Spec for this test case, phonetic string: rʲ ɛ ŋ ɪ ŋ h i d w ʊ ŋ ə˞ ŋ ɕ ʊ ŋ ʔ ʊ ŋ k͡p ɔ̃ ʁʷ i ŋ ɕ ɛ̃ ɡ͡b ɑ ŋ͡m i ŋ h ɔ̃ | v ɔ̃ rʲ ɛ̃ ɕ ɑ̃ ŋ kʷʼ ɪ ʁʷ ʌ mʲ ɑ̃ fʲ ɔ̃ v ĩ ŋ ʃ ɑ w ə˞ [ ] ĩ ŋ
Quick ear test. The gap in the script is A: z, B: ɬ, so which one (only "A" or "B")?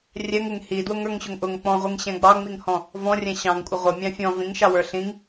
B